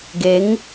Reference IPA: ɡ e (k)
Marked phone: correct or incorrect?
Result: incorrect